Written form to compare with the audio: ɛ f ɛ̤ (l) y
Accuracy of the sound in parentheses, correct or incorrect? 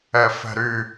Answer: incorrect